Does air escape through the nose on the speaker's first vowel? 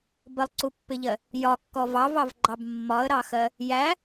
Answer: no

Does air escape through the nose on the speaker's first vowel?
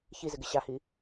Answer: no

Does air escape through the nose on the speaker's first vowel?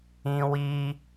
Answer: yes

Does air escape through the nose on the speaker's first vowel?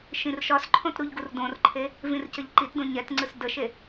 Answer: yes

